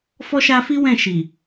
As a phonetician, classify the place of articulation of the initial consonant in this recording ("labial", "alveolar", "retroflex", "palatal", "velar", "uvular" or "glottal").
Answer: labial